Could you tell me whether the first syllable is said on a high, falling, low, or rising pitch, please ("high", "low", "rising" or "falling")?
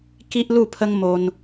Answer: high